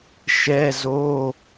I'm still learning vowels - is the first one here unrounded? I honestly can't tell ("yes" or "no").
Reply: yes